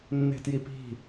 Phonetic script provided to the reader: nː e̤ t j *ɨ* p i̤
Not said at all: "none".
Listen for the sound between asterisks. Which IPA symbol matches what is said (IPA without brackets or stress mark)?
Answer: i